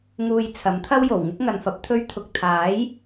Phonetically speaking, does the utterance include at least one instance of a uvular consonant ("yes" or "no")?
no